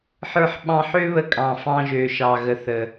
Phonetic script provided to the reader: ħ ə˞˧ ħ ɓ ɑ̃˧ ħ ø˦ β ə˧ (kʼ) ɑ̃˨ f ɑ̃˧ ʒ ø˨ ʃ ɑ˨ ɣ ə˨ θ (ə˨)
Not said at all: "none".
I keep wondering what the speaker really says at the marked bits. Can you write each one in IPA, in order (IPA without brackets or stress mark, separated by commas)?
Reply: kʼ, ə˨